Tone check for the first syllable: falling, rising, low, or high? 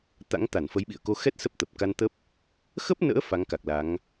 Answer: rising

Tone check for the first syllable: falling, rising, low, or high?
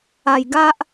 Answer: low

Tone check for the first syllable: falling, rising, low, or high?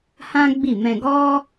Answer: high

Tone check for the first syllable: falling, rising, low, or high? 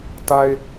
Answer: low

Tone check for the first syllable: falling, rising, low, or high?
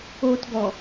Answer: low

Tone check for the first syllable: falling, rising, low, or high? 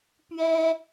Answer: high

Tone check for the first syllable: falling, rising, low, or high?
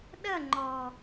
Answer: falling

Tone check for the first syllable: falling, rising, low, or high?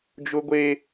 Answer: high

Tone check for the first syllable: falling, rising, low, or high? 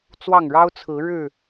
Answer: falling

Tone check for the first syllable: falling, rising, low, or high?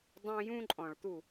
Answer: high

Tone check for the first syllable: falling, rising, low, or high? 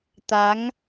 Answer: rising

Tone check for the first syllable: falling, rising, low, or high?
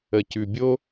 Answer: low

